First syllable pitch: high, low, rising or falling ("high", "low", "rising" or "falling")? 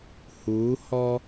rising